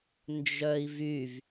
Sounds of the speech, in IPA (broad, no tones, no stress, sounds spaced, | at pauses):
n d͡ʒ œ i̯ v y v